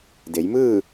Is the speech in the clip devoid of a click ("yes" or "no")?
yes